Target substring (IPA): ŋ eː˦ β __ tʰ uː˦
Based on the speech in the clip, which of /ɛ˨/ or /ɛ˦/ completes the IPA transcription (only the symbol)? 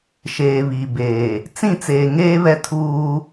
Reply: ɛ˦